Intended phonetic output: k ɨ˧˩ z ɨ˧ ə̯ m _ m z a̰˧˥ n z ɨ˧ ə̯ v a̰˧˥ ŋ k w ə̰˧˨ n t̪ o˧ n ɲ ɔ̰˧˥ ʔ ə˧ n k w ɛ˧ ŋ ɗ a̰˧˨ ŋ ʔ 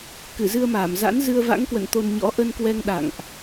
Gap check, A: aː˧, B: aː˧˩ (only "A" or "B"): B